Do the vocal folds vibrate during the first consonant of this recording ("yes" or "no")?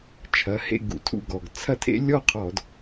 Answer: no